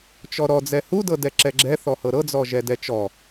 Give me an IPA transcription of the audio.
t͡ʃ ɔ ɾ ɔ d͡z ɛ h u d ɤ d ɛ ǁ ɛ ɡ͡ǁ ɛ θ ɔ h ɤ ɾ ɤ d͡z ɔ ʒ ɛ d ɛ t͡ʃ ɔ

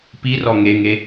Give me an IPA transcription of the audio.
p i r ɔ ŋ e ŋ e

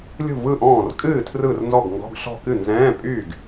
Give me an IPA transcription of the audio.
lʲ ṳ˥˩ v ɯ˥˩ ʔ ɔ̃ː˥˩ r kʼ ɨː˥˩ tʰ r ɯ˥˩ r n z ɔ˥˩ ɡ ŋ ɡ ɔ̤˧˥˧ ɡ ɬ ɔ̤˥˩ k ɨ˥˩ n z ɛ̃ː˧˥˧ pʼ yː˥˩ ɡ

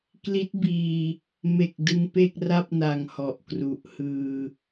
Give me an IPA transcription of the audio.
k l i˦˥ t̚ b iː˧ | m e˨˩ k̚ d ɯ˧ ŋ p e˥˩ k̚ r a˥˩ p̚ n a˨˩ ŋ h ɔ˨˩ ʔ k r u˨˩ ʔ h ɯː˧

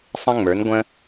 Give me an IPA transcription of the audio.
sˤ ə̃˦ ŋ͡m ə˞˨˦ n ɡʷ ə̃˦

